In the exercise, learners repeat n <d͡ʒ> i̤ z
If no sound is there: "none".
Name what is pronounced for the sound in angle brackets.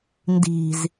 d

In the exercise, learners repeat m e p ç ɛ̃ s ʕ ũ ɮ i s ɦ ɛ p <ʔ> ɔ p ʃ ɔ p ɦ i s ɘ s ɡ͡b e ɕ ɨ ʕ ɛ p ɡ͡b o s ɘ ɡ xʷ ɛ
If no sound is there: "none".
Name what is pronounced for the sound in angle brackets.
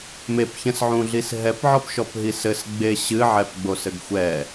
ʕ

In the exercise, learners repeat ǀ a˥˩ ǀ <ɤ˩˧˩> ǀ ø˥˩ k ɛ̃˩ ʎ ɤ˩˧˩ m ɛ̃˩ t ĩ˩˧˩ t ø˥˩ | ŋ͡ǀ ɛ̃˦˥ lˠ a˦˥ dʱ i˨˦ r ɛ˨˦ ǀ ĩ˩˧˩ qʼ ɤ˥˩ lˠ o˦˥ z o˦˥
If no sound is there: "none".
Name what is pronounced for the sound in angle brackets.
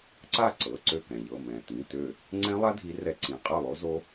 ɤ˩˧˩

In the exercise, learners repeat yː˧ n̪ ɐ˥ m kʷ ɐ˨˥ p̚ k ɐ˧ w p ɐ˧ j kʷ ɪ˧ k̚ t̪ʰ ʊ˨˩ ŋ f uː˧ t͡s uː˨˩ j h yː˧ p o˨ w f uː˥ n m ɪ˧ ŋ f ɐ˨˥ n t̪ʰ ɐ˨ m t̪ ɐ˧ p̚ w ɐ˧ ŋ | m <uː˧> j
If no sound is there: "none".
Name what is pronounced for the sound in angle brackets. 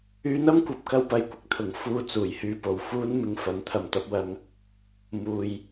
uː˨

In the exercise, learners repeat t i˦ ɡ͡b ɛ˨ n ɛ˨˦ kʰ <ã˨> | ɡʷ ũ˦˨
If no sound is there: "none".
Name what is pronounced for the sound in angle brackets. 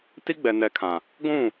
ã˨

